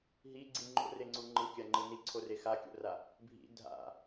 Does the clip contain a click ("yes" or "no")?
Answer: yes